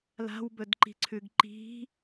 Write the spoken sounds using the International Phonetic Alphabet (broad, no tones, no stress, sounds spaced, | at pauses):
l a̤ w b ɵ d ǃ i̤ ǀʰ ʉ ɡ ǃ i̤